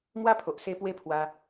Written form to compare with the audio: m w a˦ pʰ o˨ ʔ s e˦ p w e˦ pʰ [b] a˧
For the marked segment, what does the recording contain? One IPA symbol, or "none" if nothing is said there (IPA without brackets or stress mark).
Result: w